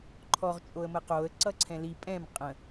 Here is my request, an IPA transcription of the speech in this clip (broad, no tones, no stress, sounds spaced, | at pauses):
ǃʰ ɔ ʁ t͡ʃʼ o ə̯ m ə q o ə̯ ǀ ʌ ǀʰ ɛ̃ l i pʼ ɛ̃ m qʼ ə̃